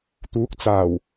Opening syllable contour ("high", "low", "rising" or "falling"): rising